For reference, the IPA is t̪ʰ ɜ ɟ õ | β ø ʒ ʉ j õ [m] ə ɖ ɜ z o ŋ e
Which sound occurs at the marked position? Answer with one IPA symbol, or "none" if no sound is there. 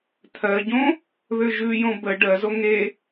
b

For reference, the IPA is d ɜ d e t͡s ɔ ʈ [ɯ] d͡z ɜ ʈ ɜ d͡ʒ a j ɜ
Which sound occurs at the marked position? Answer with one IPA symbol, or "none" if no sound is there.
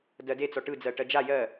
ɯ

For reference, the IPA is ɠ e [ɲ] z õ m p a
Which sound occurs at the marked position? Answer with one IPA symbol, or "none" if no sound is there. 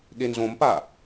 n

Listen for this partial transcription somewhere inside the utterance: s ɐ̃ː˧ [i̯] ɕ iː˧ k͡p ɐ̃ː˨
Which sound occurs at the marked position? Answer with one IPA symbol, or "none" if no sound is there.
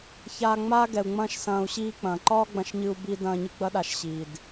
u̯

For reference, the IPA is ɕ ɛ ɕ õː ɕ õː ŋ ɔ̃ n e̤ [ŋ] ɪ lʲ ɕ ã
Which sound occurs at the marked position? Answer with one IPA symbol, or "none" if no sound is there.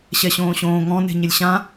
ɲ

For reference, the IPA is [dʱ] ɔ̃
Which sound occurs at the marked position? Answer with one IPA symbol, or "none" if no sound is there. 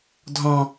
dʱ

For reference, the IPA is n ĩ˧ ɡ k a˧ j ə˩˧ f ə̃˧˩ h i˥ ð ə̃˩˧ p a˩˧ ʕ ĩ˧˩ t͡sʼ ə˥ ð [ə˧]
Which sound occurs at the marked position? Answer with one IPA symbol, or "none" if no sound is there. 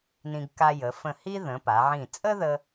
ə˧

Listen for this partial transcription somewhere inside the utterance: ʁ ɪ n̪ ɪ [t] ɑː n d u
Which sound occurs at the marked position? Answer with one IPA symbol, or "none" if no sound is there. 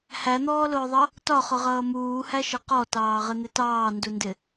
t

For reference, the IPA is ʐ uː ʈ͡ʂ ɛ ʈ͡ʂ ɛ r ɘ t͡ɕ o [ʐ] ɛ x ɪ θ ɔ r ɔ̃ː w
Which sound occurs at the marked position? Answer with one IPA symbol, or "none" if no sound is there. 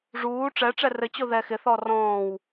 ð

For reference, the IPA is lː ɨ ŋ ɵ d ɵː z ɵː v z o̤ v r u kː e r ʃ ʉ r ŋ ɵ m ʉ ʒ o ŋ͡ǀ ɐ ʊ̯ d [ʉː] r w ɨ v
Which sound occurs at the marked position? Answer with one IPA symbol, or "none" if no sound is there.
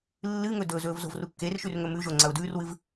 ʉː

